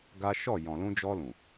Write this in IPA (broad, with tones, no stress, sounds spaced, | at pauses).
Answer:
ɡ a˦ ʃ ɔ˦˨ j ɔ̃˨ l ũ˧ d͡ʒ ɔ˧ l ũ˨